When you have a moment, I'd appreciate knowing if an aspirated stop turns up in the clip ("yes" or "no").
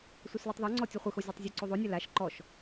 no